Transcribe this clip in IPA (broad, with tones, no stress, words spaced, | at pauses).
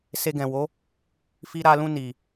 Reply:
se˧ɡɛ̃˨wo˨˦ | fi˧ɾa˧lũ˧ ni˨